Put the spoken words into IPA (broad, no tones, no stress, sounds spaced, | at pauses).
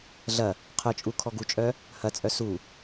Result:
ɮ ɐ | qʰ œ t͡ʃʼ u kʰ ɔ ɡ u t͡ʃʼ œ | h ɐ t͡sʼ œ s u